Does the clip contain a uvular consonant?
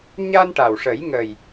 no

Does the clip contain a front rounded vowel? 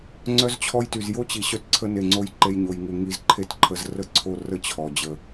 yes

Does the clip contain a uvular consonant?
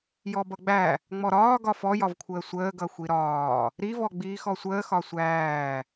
no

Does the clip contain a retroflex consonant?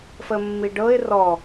yes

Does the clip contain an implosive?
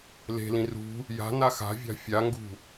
no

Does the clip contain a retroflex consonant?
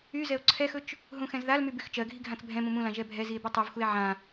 no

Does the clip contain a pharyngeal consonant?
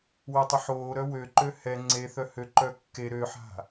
yes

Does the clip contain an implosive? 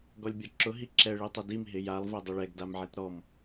no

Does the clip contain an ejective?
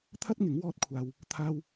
no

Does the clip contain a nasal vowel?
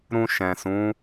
yes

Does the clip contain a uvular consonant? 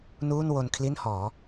no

